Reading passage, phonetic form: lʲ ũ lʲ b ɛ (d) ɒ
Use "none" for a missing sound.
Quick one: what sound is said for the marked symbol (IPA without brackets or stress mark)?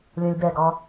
ɡ